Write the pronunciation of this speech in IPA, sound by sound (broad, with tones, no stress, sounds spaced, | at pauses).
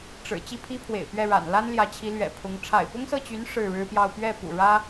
ʈ͡ʂ ɻ̩˨˩ t͡ɕ i˥˩ pʰ i˥ pʰ w ḛ˨˩ ɪ̯ p ɥ ɛ˥˩ ɻ a̰˨˩ n l a˥ n l j ä˧˥ t͡ɕʰ i˧˥ l ɥ ɛ̰˨˩ pʰ ʊ˧˥ ŋ ʈ͡ʂʰ a̰˨˩ ɪ̯ p ʊ˥ ŋ s ɤ˥˩ t͡ɕ y˧˥ n ʂ ɻ̩˥˩ ɻ ɻ̩˥ p j ɑ˥˧ ʊ̯ p ɥ ɛ˥˩ p ṵ˨˩ ɻ ä˥